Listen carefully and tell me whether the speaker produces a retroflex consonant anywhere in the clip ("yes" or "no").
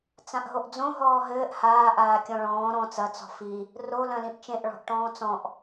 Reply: yes